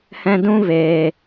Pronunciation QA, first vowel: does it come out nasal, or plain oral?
nasal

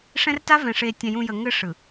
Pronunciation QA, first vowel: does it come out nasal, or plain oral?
nasal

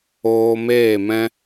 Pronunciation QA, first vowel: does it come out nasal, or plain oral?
oral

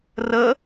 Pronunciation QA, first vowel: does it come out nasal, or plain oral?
oral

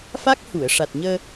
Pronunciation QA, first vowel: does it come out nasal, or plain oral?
oral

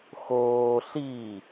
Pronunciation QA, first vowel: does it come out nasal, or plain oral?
oral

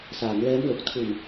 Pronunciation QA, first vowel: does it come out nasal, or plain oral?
oral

